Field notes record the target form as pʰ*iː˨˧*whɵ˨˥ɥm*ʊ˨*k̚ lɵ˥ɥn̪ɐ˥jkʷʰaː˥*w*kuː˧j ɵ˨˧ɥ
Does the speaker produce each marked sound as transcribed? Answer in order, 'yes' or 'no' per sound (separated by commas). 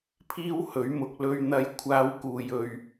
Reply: no, yes, yes